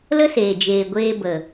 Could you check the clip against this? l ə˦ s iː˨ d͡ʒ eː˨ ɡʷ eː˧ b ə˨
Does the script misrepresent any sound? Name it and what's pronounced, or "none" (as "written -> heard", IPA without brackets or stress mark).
iː˨ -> eː˨